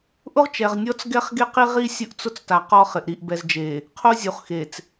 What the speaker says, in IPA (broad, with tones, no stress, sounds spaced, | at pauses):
ʔ ʊ˦ ʁ t͡ʃ ɛ˨ ʁ nʲ ɔ˦ t͡s ɡ ɛ˦ χ ɡ e˦ q i˦ ʁ i˦ sʲ ʊ˦ ʔ t͡s ʊ˦ t͡s t a˨ q ɔ˦ χ ɪ˨ ʔ ɾ i˨ ʔ b ɛ˨ z d͡ʒ e˨ | qʰ o˦ zʲ u˨ χ x e˨ t͡s